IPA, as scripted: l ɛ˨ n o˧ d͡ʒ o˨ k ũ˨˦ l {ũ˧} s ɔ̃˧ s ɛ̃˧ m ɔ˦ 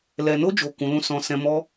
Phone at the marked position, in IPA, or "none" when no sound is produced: ũ˦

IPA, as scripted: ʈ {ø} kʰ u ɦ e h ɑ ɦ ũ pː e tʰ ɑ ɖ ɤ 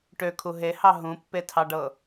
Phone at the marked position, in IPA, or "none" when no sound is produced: ø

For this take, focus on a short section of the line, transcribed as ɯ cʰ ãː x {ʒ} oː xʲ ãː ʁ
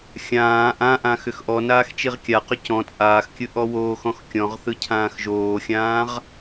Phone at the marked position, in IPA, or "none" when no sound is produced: ʒ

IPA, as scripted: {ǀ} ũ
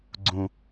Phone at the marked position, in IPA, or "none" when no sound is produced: ɡ͡ǀ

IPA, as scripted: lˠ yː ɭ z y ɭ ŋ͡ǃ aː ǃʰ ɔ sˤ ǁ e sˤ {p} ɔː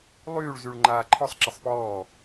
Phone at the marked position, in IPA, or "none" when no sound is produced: p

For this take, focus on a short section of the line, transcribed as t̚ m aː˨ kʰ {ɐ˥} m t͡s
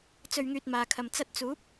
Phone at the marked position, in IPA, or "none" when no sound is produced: ɐ˨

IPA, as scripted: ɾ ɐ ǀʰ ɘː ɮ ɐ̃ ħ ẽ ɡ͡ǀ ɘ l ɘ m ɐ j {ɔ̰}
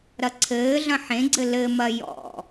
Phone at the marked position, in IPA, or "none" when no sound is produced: ɔ̰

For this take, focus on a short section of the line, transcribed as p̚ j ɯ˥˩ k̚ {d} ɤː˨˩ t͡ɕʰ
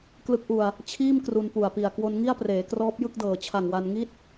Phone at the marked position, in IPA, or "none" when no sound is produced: d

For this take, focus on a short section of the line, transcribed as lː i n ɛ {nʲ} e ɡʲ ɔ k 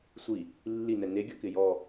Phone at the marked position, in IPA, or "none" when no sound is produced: n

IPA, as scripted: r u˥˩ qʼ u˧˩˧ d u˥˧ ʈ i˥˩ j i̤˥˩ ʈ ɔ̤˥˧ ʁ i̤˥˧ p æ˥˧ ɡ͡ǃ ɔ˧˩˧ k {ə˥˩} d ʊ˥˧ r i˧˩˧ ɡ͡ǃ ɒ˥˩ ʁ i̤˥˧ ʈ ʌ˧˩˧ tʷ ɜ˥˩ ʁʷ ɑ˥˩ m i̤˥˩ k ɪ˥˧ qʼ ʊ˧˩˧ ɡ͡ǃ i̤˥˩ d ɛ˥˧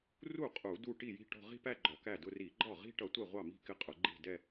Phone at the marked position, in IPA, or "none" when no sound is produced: æ˥˩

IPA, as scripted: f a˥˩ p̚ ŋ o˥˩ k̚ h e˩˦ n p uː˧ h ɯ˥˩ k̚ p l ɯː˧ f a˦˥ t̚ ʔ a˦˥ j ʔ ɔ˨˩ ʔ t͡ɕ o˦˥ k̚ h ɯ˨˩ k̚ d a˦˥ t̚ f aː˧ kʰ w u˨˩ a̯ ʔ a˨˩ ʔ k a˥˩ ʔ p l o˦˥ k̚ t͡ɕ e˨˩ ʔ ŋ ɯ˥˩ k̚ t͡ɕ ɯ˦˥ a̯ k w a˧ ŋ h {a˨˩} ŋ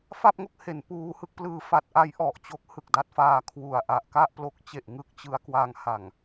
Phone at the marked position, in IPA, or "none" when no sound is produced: a˨˩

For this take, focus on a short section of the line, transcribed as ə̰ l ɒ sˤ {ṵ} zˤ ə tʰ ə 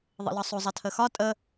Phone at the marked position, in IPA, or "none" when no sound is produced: u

